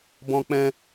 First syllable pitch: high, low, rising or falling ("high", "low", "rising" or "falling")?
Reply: high